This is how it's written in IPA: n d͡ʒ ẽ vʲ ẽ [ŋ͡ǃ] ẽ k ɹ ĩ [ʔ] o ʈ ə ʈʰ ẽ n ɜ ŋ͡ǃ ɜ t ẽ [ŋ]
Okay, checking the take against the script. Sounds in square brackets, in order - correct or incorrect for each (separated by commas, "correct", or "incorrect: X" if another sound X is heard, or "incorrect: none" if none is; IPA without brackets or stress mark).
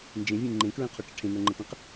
correct, incorrect: qʰ, incorrect: q